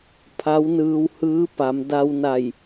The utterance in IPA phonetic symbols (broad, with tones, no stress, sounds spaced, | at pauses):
pʰ a˧˥ w n ɯː˧ w h ɯː˧˥ p a˩˧ m d a˧ w n a˧˩ j